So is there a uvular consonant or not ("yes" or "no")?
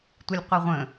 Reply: yes